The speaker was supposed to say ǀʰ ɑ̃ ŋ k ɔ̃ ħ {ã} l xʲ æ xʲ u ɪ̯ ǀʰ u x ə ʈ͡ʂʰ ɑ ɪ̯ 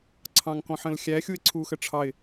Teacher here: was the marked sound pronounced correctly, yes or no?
no